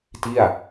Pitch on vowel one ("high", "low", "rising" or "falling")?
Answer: falling